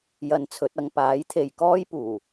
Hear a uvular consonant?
no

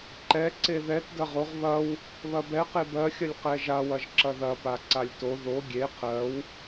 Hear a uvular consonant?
yes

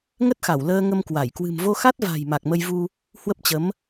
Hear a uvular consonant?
no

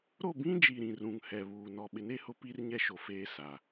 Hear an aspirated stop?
no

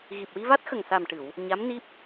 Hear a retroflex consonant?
yes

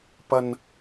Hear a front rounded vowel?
no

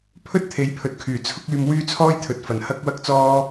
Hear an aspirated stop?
yes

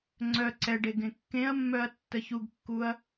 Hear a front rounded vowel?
yes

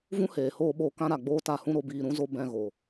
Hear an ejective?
no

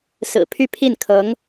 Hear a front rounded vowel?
yes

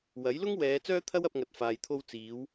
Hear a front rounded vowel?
yes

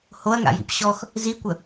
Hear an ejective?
no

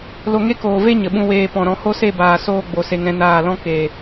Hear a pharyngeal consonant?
no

